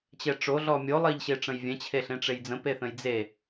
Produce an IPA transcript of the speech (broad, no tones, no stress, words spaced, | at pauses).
t͡ɕɛʈ͡ʂo ɮɔmʲo lˠɜʎɕeʈ͡ʂə̃jvʲɛ̃ t͡ɕʰeɬẽʈ͡ʂejd͡zə̃ peθə̃jd͡ze